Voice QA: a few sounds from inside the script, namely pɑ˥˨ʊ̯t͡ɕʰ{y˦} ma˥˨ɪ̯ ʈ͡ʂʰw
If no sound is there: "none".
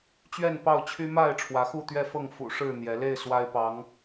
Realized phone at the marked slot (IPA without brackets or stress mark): y˦